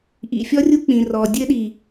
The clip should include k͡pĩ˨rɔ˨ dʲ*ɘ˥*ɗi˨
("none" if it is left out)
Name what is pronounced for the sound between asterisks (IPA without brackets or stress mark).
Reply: ɘ˥